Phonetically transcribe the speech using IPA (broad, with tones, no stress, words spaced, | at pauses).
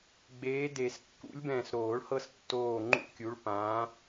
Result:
ɡ͡beː˨˦de˨˩˦s kːṵ˨˦lʲbɛ̃ː˨˩s ɾoː˨˩˦ɭhɤ˦s tːoː˦˨ ŋ͡ǃṵ˦˨kʲu˨˦ɭ pãː˨˦